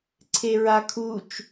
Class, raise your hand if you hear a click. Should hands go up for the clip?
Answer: yes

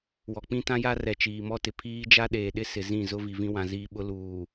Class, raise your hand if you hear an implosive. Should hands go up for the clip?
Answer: yes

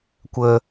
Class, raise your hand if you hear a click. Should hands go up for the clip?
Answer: no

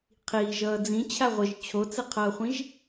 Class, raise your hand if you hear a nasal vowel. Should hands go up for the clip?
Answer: yes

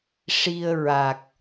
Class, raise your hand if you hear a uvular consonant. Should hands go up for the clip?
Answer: no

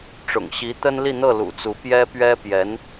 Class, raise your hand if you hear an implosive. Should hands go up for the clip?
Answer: no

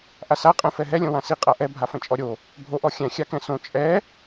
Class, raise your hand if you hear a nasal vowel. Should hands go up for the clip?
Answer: yes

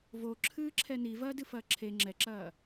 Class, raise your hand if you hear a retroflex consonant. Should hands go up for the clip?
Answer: no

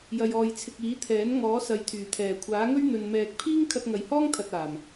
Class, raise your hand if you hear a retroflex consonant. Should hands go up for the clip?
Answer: no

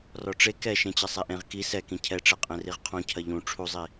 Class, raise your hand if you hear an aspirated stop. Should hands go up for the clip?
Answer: yes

